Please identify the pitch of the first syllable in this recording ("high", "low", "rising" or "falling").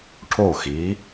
falling